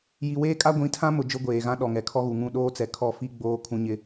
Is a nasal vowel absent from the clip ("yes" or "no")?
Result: no